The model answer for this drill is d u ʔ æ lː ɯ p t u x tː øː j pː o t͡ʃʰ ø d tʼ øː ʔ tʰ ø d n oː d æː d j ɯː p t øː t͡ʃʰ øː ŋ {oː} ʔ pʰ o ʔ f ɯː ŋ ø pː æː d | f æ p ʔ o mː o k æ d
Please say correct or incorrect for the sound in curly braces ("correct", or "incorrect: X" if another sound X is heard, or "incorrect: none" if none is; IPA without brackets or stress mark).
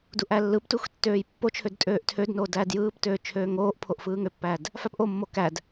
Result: correct